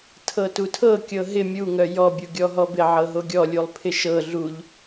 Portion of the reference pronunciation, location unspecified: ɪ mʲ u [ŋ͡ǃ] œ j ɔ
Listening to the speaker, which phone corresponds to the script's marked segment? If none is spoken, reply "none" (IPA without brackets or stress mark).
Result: ŋ